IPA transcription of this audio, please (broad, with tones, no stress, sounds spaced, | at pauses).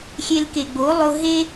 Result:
xʲ e˧ l k e˨ ɡ͡b o˨˦ lˠ o˧ ɦ e˦